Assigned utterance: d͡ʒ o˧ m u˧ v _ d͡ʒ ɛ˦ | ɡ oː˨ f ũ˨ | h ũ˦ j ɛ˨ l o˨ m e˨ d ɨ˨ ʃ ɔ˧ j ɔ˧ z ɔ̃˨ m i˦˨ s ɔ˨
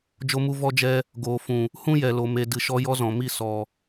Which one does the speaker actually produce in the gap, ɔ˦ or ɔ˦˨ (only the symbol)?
ɔ˦